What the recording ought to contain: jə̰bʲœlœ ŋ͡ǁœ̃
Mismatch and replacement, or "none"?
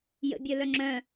none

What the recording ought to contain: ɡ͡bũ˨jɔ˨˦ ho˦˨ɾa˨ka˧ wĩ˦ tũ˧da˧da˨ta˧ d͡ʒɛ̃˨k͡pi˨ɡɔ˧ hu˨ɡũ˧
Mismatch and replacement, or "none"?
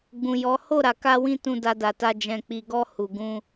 none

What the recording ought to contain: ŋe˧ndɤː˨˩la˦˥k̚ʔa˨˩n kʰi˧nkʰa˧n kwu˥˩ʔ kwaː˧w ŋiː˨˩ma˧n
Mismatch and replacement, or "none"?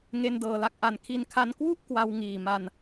aː˧ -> a˧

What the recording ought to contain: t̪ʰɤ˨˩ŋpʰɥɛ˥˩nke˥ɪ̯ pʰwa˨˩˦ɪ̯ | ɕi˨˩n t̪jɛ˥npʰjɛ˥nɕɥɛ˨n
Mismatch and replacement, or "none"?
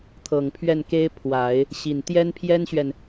none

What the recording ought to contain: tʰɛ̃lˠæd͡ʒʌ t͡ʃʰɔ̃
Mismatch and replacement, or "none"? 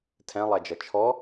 ɔ̃ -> ɔ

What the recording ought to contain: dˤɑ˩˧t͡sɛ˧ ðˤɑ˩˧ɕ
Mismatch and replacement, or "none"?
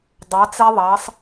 ɕ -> sˤ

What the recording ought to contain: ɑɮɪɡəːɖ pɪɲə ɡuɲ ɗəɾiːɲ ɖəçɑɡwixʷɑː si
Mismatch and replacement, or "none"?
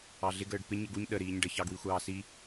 none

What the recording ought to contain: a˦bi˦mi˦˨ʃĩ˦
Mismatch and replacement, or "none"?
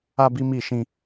none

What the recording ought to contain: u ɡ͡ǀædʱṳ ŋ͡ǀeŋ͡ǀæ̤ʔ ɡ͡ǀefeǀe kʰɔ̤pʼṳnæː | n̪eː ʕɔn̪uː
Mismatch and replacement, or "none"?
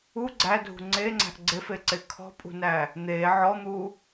none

